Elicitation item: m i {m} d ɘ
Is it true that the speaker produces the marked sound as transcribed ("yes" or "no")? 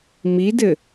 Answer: no